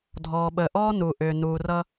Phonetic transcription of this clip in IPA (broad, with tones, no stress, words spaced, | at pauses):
dʱɔː˨ɓəː˨ʔɔː˦ nu˨ʔʏː˨ nuː˨rʌ˦